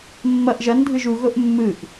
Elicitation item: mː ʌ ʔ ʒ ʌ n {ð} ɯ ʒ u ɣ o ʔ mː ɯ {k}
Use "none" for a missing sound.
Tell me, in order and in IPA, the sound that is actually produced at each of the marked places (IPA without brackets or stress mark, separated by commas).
dʱ, ʔ